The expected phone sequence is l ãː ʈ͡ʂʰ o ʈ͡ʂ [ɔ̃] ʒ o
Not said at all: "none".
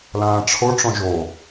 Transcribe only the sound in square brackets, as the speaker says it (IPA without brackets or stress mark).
ɔ̃